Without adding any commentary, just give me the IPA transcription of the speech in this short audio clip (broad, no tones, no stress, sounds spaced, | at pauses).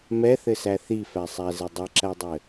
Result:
m ɛ θ ɘ s æ θ i f æ sˤ æ z ɘ dˤ ɘ ǁ æ dˤ ɘ